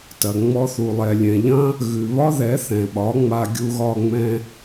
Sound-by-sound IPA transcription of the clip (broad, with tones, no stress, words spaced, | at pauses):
tɐ˨ ŋ͡mɔ˦ θu˨lˠɛ˨lʲɛ̃˨ ʎɐ̃˦ | ɣʉ˨βɒ˦ðɛ˨˦ θɛ̃˨ɓɒ˨˦ŋ͡ma˧ ɡʲu˧ɣɒ˧ ŋ͡mɛ̃˧